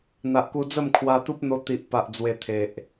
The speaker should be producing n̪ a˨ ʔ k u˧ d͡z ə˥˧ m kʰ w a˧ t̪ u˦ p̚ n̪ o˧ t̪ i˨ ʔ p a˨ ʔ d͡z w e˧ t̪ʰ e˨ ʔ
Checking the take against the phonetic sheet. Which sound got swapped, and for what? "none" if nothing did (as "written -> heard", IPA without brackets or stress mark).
none